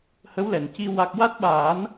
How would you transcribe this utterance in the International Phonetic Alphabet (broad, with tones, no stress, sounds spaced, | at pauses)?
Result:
h ə˧˥ w l ɛ˨˩˨ n c i˧ w a˦˥ k̚ w a˦˥ t̚ ɓ aː˨˩˦ n